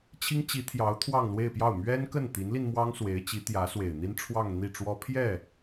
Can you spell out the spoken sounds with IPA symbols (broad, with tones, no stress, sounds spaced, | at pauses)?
t͡ɕʰ i˥ ŋ t͡ɕ i˧˥ t̪ʰ j ɑ˧˥ ʊ̯ t̪ʰ w ɑ˥˧ ŋ l w e˥˧ ɪ̯ p j ɑ˥˩ ʊ̯ m ɥ ɛ˥ n k ə˥˩ n t̪ i˧˥ n l i˧ n m w ɑ˥ ŋ s w e˧˥ ɪ̯ t͡ɕ i˧˥ t̪ j ä˧˥ s w e˨˩ ɪ̯ n̪ i˥ n ʈ͡ʂʰ w ɑ˥˧ ŋ n̪ i˥˩ ʈ͡ʂ w ɔ˥ pʰ j ɛ˥˩